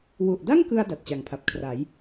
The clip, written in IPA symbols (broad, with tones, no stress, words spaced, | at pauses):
wu˨˩ʔda˥˩ŋkɯ˧a̯ da˨˩t̚t͡ɕa˩˦ŋpʰa˨˩p̚ kʰra˩˦j